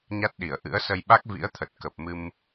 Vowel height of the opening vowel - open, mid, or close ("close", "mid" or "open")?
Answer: open